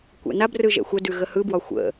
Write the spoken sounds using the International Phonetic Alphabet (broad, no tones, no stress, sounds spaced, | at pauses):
kʷ ɛ̰ n a b r ɯ ʒ ɛ̰ xʷ ə d ʉ ɣ ə h ɯ b w ɒ xʷ ə̰